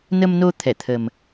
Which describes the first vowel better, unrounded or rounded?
unrounded